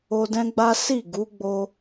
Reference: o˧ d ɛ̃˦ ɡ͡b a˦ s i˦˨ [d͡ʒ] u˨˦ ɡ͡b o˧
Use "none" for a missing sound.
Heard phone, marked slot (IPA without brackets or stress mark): ɡ